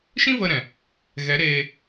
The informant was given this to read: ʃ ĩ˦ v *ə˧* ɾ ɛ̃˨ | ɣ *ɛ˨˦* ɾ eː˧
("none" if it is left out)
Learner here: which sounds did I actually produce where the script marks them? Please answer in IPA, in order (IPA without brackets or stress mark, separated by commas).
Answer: ə˧, ɛ˨˦